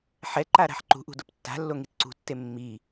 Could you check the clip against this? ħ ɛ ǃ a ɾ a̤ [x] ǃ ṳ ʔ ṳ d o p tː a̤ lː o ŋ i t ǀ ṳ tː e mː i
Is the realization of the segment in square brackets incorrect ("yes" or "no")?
yes